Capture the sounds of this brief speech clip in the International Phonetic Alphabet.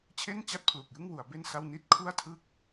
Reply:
t͡ɕʰ e˥˩ n t͡ɕ a˥˩ t̚ pʰ l u˨˩ k̚ j ɯ˥˩ ŋ w u˩˦ a̯ b e˥˩ n s a˥˩ w n i˥˩ t̚ kʰ u˥˩ a̯ tʰ ɯ˥˩ k̚

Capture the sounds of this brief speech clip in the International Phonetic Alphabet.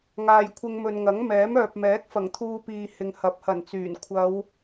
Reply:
ŋ aː˨ j kʷʰ ɪ˧ ŋ m ɵ˨ n ŋ ɐ˨˥ ŋ m ɛː˨˥ m œː˨ p̚ m ɛː˨˥ k̚ f ɐ˨˩ ŋ t̪ʰ uː˧ p iː˨ h ɪ˨ ŋ h ɐ˨˥ p̚ h ɐ˨˩ n t͡s yː˨˩ n kʷʰ ɐ˨˧ w

